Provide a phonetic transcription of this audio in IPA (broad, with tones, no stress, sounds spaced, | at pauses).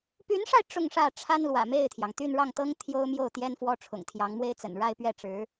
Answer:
p y˧˥ n ʂ a˧ ɪ̯ ʈ͡ʂ ʊ˥˧ ŋ ʂ ä˥˩ ʈ͡ʂʰ a˥ n l w ä̰˨˩ m e˥˩ ɪ̯ t̪ʰ j ɑ˩ ŋ t̪ y˥˧ n ɻ ɑ˥˩ ŋ t̪ ɤ˥ ŋ t̪ʰ j o˥ ʊ̯ m j o˥˩ ʊ̯ t̪ j ɛ˥ n f w ɔ˥ ʈ͡ʂʰ ʊ̰˨˩ ŋ t̪ʰ j ɑ˧˥ ŋ m w e˥ ɪ̯ t͡s ə̰˨˩ n ɻ a˥˧ ɪ̯ p ɥ ɛ˥˩ ʈ͡ʂ ɻ̩˧˥